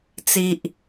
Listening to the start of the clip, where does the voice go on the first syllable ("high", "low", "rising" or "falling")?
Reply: low